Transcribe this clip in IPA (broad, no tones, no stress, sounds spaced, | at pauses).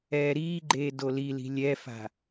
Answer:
ɛː ɾ iː ɡ͡ǃ eː d o l i l i̤ lʲ ɛ f a̤